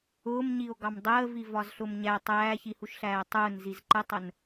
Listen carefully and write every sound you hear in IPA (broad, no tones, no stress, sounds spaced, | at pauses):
ʊː m ɲ i o̯ ɡ ɑ m dˤ əː v i v ɒ z ɬ ʊ m ɲ æ tˤ æː ç i h u ʃ ɬ æː tˤ ʊː n z i z ǃ ə tˤ ə n